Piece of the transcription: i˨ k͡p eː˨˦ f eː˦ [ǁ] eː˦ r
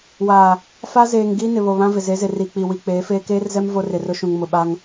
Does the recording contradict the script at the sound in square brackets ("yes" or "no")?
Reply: yes